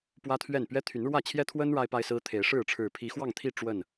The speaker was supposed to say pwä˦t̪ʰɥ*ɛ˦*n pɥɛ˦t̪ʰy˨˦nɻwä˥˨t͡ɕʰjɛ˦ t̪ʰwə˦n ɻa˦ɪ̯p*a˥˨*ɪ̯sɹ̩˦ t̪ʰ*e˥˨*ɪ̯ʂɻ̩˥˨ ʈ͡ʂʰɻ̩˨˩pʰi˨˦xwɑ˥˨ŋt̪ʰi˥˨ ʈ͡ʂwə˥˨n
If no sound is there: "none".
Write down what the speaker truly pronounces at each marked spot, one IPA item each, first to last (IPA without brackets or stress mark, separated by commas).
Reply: ɛ˥˨, a˦, e˨˦